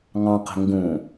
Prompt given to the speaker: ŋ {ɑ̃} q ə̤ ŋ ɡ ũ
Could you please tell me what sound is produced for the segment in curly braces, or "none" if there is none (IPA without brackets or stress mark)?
ɑ̃